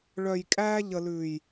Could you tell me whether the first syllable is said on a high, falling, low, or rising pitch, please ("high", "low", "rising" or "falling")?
low